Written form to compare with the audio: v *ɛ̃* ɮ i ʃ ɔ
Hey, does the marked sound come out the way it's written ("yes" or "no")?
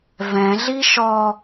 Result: yes